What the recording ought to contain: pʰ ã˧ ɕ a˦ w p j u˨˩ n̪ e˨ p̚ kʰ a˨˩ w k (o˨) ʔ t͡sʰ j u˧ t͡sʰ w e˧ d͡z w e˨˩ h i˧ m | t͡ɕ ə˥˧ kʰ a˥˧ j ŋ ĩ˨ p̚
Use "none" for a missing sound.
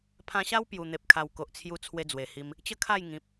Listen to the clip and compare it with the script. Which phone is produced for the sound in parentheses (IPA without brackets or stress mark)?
o˨